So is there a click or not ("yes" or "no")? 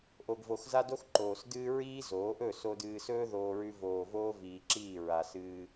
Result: yes